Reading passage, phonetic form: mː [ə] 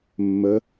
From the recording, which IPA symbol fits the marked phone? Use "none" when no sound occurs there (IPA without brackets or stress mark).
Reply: ə